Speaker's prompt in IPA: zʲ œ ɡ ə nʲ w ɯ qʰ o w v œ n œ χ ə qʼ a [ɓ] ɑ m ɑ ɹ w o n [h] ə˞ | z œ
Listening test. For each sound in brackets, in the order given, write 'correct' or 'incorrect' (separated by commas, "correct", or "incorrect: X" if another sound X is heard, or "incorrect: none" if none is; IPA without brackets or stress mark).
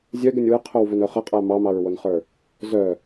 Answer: incorrect: m, incorrect: χ